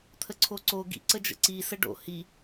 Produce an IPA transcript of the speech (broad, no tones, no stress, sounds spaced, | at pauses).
t̪ʰ ə ǀʰ o ǀ o ɡ ḭ ǀ ə d͡ʒ ə̰ ǀ i s ə ɖ o̰ h i